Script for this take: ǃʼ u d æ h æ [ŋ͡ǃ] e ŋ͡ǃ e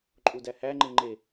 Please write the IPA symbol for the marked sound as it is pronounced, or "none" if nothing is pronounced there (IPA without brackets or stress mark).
ŋ͡ǃ